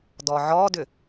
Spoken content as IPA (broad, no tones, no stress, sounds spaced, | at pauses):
d ɔ ʕ ɔ d ʏ